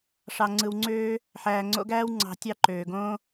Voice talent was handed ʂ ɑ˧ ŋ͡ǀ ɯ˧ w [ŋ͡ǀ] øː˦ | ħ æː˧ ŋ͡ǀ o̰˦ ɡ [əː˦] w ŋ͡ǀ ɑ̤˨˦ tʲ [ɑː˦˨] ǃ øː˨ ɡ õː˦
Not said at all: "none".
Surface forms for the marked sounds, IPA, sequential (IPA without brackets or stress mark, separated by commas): ŋ͡ǀ, æː˦, ɑ˦˨